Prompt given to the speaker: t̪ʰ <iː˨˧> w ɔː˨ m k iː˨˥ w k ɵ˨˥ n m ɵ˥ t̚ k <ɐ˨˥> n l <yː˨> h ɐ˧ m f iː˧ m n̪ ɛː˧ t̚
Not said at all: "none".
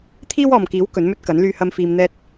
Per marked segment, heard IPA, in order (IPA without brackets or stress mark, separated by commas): iː˥, ɐ˨˥, yː˧